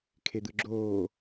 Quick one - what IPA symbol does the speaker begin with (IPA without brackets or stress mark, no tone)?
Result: kʰ